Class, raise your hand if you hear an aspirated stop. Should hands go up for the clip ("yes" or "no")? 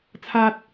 yes